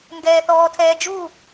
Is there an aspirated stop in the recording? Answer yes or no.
yes